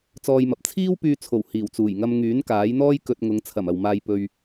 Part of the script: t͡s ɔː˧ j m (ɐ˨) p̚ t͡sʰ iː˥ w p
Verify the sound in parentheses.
correct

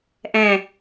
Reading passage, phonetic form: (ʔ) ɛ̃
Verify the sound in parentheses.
correct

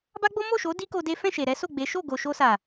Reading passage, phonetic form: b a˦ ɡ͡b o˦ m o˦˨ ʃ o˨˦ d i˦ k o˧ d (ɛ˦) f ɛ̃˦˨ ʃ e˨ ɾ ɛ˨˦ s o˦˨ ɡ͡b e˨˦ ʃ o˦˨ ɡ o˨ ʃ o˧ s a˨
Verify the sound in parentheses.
incorrect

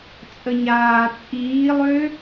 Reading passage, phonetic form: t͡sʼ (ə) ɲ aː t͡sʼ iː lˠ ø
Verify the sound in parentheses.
correct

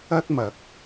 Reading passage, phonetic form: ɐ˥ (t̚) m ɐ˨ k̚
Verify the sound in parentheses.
correct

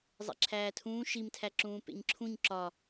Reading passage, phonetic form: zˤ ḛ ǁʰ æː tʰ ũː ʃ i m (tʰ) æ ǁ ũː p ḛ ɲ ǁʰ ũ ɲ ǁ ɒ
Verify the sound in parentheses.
correct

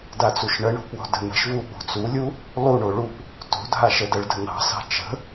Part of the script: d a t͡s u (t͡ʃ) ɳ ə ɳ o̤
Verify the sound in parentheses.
incorrect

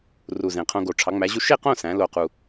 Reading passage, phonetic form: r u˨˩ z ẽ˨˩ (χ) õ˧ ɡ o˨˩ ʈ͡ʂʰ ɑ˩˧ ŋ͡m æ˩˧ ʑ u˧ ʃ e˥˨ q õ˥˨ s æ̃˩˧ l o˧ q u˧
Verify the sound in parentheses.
incorrect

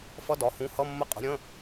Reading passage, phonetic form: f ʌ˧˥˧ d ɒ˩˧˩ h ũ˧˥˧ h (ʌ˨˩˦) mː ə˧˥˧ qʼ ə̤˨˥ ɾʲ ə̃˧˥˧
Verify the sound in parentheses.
incorrect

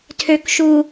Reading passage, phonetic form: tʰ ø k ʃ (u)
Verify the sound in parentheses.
correct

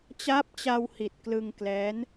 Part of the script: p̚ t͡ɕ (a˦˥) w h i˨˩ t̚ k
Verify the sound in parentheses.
incorrect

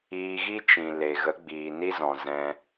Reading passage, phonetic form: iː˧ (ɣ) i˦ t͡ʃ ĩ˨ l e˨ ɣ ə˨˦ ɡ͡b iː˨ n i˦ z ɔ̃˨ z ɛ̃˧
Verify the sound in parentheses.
correct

